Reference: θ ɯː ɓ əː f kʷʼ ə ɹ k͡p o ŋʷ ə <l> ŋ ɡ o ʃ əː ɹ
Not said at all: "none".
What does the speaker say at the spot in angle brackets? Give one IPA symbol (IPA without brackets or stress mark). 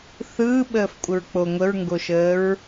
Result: ɹ